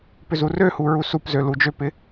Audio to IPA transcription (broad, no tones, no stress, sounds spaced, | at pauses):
p ʏ z u r ø h u ɹ u s u p z ø l u d͡ʒ ø p ɪ